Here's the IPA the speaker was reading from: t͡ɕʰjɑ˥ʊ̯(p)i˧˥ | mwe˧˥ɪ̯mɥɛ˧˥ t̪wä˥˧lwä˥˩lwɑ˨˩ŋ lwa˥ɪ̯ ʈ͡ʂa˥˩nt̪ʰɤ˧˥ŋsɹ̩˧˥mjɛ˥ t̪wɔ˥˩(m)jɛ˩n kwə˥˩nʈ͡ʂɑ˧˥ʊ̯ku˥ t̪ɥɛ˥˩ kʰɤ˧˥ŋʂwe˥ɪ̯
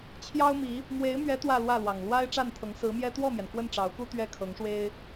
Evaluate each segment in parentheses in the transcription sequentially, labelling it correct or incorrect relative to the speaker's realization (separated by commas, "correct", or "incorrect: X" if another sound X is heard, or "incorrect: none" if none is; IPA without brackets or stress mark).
incorrect: m, correct